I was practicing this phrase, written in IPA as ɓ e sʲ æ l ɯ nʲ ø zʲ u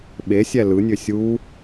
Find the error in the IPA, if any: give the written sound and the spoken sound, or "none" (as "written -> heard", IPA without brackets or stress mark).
zʲ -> sʲ